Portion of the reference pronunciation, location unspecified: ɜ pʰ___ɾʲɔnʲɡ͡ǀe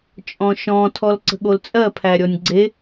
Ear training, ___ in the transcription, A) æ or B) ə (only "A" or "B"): A